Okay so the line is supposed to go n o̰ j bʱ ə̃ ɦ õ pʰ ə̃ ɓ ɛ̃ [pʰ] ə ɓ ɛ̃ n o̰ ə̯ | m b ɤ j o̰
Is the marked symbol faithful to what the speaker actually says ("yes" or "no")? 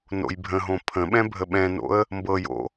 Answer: no